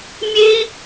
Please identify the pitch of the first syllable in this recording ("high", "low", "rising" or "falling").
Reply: high